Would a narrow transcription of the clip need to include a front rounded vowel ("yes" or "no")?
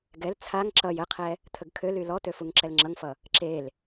yes